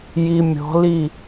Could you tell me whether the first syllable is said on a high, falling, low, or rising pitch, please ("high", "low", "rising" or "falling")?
low